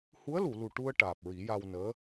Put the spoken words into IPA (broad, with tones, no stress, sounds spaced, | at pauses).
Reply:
h u˧˥ ə̯ l u˨˩˨ l u˨˩ ʈ u˧ ə̯ ʈ aː˨˩ p̚ ɹ i˨˩˦ j a˧ w n əː˧˥